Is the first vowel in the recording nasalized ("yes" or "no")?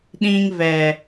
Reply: yes